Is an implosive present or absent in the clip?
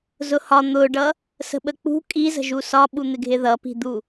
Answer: present